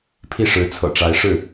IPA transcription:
pʰi˥˩ʂɻ̩˧˥ t͡sʰɤ̰˨˩ʈ͡ʂa˧˥ɪ̯ ʂɻ̩˥˩

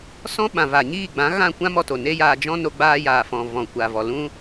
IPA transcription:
sɔ̃˦ ɓã˨ vaː˨ɲiː˦˨ɡ͡bã˨˦ɣã˦˨ kʷã˦mɔ˧to˨ ne˦jaː˧ d͡ʒɔ̃˦no˧ɡ͡baː˧jaː˨ fɔ̃˨ vɔ̃˨ kʷaː˨vɔ˨lũ˦

